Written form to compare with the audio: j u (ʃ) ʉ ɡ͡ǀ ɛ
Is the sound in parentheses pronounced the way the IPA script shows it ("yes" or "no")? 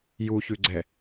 no